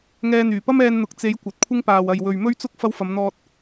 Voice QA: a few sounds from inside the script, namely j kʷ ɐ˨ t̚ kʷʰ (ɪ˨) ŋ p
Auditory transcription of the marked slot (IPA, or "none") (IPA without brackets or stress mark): ɪ˥